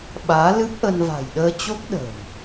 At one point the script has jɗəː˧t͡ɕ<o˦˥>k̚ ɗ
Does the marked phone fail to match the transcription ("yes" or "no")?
no